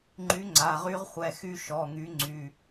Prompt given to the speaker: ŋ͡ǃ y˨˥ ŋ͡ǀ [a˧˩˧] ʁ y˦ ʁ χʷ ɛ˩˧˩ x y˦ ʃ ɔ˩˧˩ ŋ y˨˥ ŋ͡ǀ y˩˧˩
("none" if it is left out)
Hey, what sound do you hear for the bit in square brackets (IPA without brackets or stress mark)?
a˩˧˩